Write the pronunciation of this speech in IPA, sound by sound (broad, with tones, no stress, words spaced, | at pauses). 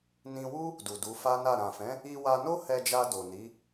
nĩ˧wu˦ | du˨du˨˦fa˦na˦˨ ɾã˨fɛ̃˨˦ | i˧wa˧no˦ hɛ˧d͡ʒa˧ do˨ni˨˦